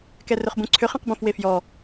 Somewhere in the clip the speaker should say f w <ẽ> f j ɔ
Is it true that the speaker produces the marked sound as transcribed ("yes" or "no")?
no